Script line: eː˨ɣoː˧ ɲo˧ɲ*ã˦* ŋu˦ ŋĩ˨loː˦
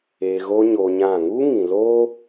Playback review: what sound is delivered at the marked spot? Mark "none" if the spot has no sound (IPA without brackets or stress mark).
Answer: ã˦˨